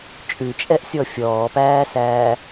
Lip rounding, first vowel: rounded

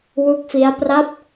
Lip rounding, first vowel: rounded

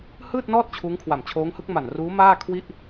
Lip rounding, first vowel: unrounded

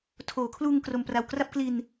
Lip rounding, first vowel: rounded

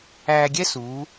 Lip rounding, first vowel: unrounded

